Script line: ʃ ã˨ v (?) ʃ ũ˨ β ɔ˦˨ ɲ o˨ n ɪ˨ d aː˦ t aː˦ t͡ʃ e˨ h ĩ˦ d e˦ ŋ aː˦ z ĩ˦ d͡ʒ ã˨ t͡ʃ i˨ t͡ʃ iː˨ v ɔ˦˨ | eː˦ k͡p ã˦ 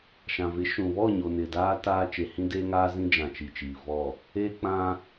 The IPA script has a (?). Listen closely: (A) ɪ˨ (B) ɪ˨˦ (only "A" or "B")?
B